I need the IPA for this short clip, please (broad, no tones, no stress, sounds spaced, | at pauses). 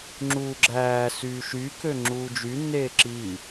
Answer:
ŋ͡ǁ uː ɡ͡ǁ æː s yː ʃ y k ø ŋ͡ǁ uː d͡ʒ y nː eː ǁ i